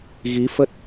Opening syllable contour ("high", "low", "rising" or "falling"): rising